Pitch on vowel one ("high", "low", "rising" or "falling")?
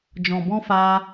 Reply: low